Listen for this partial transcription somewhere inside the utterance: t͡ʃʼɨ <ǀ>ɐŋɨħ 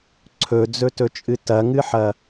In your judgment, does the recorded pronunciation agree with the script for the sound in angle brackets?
no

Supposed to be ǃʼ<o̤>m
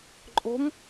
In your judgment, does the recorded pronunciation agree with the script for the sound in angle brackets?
yes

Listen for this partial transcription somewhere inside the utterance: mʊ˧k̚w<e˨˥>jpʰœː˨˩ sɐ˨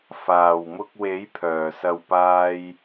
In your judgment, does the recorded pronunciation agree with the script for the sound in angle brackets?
yes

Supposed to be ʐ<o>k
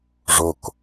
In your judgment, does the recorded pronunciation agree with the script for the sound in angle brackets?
yes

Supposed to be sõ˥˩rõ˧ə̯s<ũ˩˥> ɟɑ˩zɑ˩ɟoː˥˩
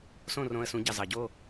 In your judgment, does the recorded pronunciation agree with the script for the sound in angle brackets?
yes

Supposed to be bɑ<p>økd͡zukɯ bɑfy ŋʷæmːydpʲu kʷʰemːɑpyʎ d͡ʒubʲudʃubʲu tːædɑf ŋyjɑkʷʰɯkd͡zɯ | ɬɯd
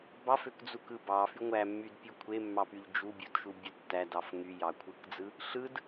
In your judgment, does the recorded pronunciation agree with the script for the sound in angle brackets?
no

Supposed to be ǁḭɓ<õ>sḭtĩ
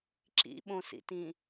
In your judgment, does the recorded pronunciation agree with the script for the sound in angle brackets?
yes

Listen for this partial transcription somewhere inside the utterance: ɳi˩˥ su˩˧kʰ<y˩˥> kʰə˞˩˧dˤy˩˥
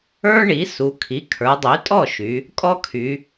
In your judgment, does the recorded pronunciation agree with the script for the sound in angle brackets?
no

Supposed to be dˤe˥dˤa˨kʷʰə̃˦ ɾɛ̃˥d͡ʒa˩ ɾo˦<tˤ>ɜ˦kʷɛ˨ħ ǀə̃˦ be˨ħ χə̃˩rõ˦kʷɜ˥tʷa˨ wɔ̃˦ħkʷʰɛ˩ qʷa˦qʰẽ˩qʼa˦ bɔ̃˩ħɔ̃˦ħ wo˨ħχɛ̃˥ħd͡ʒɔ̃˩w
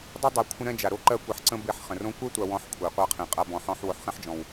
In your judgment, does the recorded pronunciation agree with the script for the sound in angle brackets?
no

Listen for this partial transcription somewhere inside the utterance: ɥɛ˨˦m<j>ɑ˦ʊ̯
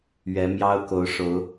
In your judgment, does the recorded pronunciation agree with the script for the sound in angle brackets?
yes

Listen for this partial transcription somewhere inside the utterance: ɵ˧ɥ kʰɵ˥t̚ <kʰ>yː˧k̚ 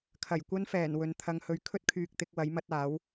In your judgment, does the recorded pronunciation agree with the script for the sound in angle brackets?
yes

